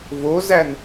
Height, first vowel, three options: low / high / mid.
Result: mid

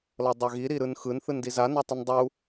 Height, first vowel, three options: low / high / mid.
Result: mid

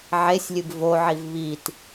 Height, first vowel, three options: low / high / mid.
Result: mid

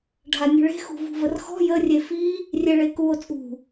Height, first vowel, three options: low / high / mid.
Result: low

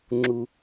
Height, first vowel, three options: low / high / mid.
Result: high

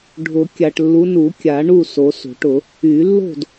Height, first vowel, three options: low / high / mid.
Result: high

